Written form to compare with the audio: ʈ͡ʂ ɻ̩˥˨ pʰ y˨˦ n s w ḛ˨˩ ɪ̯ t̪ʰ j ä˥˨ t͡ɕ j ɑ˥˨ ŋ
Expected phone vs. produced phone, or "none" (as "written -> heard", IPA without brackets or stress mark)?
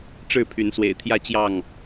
none